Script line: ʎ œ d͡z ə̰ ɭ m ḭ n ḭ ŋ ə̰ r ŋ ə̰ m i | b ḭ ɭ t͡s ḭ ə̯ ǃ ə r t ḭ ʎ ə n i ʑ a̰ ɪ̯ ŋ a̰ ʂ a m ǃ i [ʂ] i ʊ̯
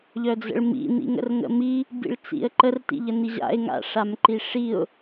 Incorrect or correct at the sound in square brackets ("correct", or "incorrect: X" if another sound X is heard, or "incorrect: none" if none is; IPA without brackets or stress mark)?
correct